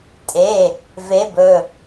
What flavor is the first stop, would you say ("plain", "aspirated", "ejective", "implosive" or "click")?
ejective